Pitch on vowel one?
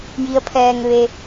rising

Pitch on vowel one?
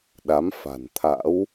rising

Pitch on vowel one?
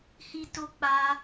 high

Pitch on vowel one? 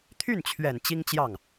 falling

